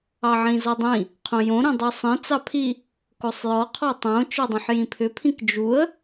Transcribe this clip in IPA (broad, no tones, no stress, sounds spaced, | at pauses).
ɑ ʕ ĩ z ɔ dˤ ĩ | qʰ õ j õ ɾ ĩ dˤ u sˤ ĩ t͡s ɑ pʰ i | k o sˤ j ɔ qʰ ɔ tˤ õ t͡ʃ ɔ dˤ õ ħ j ĩ pʰ ʏ pʰ ĩ k d͡ʒ u ə̯